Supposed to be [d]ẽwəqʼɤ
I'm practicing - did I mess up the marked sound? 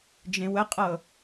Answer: yes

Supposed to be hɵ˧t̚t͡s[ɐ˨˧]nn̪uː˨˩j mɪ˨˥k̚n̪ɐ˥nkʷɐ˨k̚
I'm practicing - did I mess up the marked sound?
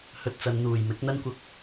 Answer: no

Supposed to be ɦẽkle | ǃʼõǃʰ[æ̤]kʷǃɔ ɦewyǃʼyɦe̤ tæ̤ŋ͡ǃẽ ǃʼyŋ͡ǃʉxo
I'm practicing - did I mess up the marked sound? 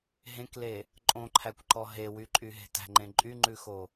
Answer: yes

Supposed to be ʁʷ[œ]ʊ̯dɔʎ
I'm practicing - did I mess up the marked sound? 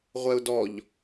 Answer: yes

